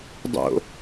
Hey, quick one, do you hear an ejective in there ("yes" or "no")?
no